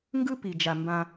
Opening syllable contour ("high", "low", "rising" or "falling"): high